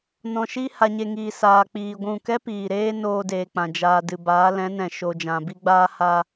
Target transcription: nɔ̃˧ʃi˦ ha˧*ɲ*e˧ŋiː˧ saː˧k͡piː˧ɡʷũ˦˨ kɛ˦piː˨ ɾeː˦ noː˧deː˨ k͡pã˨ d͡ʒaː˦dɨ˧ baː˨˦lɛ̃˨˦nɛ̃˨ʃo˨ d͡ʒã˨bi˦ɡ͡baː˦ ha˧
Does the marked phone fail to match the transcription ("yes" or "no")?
no